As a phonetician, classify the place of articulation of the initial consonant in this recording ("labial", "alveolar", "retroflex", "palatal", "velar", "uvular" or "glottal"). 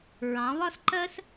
alveolar